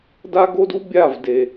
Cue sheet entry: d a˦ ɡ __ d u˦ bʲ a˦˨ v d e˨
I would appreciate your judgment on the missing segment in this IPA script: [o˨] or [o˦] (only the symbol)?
o˦